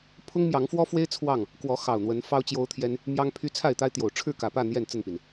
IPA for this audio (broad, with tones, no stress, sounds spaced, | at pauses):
pʰ ʊ˦ ŋ m j ɑ˨˦ ŋ f w ɔ˦ f w e˦ ɪ̯ t͡sʰ w ɑ˥˨ ŋ | k w ɔ˨˦ x ɑ˨˩ ʊ̯ n̪ w ə˨˦ n f ɑ˦ ʊ̯ t͡ɕ j o˦ ʊ̯ t̪ʰ j ɛ˦ n | m j ɑ˦ ŋ pʰ y˦ t͡sʰ a˥˨ ɪ̯ t̪ a˦ ɪ̯ t̪ j o˨˩ ʊ̯ ʈ͡ʂʰ ɻ̩˥˨ k ä˨˩ p ä˥˨ n̪ j ɛ˥˨ n t͡s ə˥˨ n p i˩ n